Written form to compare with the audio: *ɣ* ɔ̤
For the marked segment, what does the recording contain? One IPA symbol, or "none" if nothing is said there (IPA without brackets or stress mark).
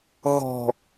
ɣ